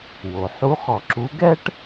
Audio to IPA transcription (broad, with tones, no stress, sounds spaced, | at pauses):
w o˩ ħ u˧˥ χ ɔ˧˩ ǁ u˧˥ ɡ ɛ˥ ʈ